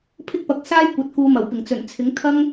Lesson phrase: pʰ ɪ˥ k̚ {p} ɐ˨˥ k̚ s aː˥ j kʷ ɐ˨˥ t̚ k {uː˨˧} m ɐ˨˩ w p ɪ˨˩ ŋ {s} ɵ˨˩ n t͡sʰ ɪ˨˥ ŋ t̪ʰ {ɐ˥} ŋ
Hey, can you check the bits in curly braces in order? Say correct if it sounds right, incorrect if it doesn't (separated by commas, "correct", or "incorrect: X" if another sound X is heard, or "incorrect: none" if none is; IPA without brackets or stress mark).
correct, correct, incorrect: t͡s, correct